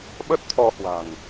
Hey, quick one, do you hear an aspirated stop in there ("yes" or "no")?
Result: yes